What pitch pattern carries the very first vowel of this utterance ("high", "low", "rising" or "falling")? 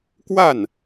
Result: falling